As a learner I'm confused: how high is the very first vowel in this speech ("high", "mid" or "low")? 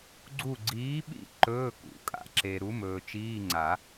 high